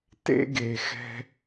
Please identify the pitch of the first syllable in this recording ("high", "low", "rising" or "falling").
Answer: high